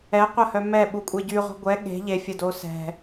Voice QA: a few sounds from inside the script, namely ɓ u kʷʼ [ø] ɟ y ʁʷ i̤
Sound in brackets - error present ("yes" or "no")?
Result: yes